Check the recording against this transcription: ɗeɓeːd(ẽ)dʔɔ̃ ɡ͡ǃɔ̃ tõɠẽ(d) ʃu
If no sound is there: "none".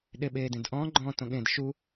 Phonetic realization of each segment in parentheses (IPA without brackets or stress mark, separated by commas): ẽ, d